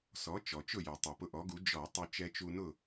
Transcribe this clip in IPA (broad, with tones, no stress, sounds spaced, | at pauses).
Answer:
s ɔ˩˥ t͡ʃ ɔ˩ t͡ʃ ʊ˥˩ j ɛ˩ tˤ ɛ˩ p ʊ˧ ʔ ɔ˩˥ ɡ u˩˥ d͡ʒ ɔ˧˩˧ tˤ u˧ t͡ʃ ɛ˧ t͡ʃ u˧ n ʊ˥˩